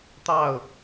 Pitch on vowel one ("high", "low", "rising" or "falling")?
falling